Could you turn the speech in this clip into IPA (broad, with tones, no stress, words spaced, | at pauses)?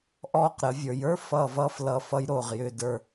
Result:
ʔɔː˧˩qɾə˩˧ vʲə˞˩˧jə˞˥ fʌː˧˩vʌː˧f lʌː˧˩fʌ˧j ɾoː˧˩ʁjʏː˧˩də˞˧˩